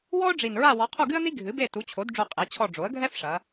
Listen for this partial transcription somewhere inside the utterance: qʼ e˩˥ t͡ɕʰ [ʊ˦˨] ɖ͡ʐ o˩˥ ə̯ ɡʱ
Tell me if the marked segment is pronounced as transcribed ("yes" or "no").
no